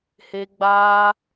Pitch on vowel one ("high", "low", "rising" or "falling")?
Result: high